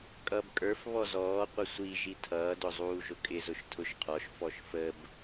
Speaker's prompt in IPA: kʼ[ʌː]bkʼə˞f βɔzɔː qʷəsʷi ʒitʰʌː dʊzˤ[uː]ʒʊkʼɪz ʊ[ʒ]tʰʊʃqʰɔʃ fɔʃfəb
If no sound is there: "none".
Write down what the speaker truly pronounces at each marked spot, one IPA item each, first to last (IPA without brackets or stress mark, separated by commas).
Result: ʌː, uː, ʃ